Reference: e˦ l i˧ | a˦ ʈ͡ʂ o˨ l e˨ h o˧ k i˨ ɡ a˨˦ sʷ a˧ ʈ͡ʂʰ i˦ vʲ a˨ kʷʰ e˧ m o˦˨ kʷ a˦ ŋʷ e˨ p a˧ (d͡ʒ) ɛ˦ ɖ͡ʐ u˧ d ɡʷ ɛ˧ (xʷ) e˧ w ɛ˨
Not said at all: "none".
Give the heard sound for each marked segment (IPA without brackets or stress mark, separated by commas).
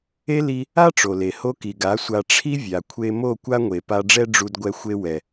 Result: ɖ͡ʐ, xʷ